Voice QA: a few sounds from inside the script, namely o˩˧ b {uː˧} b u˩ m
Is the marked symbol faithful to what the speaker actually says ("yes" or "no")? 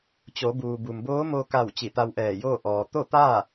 no